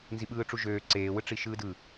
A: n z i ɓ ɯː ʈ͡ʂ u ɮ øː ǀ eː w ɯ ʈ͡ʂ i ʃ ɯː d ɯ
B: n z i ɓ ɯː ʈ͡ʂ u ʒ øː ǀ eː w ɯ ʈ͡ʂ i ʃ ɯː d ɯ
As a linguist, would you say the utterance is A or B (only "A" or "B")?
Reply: B